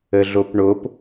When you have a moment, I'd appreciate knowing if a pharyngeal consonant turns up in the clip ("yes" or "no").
no